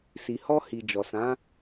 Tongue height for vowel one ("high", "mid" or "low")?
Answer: high